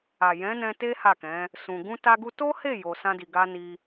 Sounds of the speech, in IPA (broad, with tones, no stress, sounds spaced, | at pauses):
a˨ j ɛ̃˨˦ n ɛ̃˧ t e˦ h a˦˨ k ɛ̃˨˦ | s ũ˧ ɡ ũ˦ t a˦ ɡ u˦ t o˦ h e˦˨ j o˧ s ã˦ d i˧ ɡ a˦ n i˧